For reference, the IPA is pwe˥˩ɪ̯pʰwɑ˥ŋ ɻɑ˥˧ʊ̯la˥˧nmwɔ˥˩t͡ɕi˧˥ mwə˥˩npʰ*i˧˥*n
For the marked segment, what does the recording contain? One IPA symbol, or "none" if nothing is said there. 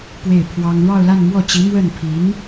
i˧˥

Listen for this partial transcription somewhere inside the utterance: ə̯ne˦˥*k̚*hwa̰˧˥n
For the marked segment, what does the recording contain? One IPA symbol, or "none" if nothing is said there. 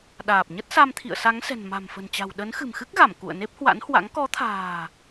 p̚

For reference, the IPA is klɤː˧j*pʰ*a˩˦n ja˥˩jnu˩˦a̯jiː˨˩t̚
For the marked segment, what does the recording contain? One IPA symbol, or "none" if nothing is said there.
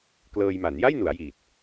m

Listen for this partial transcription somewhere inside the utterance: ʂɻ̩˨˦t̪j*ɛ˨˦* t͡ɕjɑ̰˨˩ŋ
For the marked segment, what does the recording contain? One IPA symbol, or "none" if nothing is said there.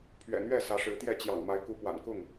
ɛ˥˨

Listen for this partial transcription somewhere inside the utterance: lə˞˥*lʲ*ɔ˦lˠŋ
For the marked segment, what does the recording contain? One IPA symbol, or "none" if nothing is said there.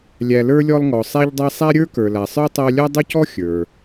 lʲ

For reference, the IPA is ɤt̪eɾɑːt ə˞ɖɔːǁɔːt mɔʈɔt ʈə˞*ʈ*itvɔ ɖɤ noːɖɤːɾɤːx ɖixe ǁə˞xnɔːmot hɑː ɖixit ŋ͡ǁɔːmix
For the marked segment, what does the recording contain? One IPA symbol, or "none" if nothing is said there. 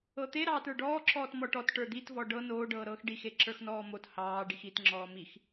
d̪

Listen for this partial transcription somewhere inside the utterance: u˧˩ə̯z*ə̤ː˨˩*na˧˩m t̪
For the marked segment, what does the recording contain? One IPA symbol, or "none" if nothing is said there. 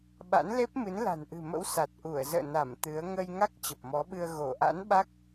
ə̰ː˧˨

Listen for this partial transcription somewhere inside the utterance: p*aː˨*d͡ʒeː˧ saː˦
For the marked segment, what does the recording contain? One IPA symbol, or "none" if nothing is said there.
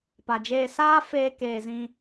a˨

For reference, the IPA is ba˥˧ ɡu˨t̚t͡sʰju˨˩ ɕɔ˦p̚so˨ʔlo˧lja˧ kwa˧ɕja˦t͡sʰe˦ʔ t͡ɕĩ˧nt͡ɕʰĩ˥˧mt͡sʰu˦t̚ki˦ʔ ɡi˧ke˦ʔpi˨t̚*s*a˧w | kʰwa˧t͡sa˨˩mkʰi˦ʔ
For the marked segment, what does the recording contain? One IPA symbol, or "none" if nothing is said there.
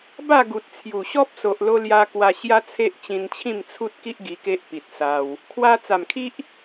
s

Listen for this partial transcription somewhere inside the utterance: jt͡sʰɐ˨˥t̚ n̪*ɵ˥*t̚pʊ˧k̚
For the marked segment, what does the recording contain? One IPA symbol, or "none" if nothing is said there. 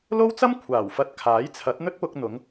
ɵ˥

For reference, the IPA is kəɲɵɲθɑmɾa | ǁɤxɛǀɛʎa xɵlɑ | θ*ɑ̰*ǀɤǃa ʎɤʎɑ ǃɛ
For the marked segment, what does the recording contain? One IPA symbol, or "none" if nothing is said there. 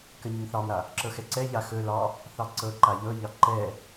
ɑ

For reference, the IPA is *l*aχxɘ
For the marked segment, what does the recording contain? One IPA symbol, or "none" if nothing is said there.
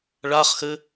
ɭ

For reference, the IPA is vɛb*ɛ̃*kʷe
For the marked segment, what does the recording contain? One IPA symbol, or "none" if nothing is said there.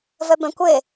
ɛ̃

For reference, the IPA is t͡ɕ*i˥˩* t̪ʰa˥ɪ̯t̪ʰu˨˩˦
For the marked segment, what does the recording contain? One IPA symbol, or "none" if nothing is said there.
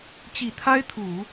i˨˩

